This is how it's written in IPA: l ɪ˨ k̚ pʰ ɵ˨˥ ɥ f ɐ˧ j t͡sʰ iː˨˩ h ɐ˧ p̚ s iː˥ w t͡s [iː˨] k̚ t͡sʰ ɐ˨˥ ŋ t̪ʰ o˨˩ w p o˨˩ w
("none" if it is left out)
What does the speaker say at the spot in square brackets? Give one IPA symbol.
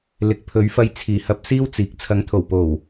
iː˨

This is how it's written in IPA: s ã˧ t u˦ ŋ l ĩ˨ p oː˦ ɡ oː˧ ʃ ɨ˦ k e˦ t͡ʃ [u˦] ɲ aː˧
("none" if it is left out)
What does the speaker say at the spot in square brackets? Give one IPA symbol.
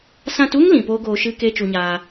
u˧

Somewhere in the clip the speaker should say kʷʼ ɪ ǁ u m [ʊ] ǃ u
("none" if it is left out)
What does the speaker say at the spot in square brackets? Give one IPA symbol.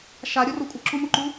ʊ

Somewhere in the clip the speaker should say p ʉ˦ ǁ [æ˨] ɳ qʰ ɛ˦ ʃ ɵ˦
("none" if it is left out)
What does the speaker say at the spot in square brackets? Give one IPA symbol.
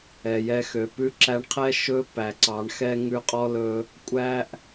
æ˧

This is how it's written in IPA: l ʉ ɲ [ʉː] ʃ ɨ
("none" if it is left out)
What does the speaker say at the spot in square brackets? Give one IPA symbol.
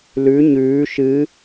ʉː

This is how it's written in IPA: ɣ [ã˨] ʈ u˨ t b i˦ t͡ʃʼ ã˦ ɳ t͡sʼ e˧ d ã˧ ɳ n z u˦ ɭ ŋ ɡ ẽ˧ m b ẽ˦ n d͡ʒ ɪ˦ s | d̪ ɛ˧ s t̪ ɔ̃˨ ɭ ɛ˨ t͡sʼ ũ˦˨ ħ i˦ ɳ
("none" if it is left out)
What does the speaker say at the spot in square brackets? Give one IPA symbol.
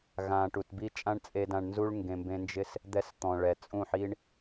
ãː˨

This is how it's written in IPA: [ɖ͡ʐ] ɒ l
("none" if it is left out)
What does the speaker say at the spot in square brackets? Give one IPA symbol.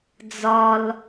d͡z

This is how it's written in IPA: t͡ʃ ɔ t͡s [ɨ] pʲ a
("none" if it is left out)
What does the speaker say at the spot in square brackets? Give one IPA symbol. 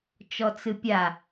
ɨ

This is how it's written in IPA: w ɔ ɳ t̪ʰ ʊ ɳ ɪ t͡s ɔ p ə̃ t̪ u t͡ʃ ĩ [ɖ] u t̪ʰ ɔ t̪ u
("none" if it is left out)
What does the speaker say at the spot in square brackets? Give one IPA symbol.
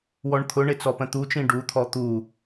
ɖ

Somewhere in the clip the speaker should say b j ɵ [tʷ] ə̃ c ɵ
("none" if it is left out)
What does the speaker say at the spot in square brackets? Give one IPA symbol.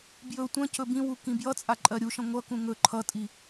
tʷ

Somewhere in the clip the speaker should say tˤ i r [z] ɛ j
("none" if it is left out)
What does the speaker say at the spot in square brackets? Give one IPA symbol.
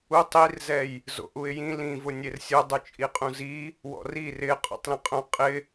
z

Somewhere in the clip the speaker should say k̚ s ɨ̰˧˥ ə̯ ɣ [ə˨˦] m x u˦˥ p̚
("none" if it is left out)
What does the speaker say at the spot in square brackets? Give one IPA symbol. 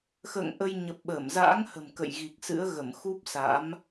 ə˧˩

